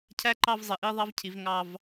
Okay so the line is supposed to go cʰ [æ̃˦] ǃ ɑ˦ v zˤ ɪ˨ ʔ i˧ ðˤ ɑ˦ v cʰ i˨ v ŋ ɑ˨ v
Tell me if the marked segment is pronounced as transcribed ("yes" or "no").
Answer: no